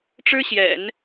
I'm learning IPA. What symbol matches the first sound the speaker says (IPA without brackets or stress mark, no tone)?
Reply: ʈ͡ʂ